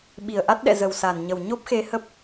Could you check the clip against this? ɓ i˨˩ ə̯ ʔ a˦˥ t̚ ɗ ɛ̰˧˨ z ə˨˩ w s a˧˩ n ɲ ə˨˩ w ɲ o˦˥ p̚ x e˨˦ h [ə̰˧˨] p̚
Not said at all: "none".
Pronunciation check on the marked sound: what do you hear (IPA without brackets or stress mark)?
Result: ə˦˥